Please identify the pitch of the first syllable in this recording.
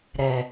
low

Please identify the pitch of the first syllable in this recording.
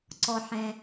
low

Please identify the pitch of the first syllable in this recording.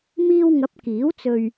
high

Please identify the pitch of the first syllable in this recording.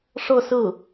falling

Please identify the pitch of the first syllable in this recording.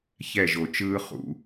falling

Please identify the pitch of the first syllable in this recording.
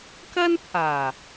high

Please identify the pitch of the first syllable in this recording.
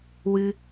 high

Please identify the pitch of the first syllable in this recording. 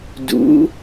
rising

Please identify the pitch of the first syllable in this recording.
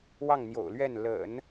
falling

